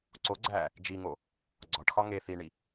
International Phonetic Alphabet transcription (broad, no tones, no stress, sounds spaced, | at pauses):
ǀ o ɡ͡ǀ æː | d͡ʒ i ŋ o | ɡ͡ǀ ɒ ʈ x ɒ ŋ e θ i ɳ i